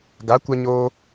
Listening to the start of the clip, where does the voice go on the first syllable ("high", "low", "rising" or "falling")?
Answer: rising